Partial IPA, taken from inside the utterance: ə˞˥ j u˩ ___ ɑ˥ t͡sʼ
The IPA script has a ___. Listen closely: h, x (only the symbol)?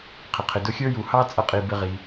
h